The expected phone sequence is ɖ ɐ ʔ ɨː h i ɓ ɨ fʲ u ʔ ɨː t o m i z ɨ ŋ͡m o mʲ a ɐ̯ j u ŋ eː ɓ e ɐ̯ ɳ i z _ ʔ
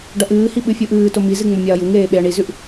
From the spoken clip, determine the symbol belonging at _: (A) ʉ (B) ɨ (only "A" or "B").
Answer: A